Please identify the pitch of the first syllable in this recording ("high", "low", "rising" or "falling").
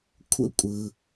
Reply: high